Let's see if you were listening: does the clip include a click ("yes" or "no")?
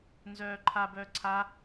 yes